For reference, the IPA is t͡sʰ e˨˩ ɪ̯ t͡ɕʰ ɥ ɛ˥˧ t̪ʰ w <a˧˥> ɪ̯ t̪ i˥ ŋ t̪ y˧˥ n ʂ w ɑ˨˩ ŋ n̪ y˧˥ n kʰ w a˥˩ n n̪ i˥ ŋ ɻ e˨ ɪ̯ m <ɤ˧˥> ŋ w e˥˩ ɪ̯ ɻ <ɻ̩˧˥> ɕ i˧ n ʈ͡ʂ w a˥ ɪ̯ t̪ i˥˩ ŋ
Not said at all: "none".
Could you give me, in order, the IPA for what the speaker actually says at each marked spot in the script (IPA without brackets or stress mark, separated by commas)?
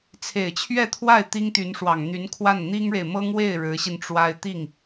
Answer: a˥˩, ɤ˥, ɻ̩˧˥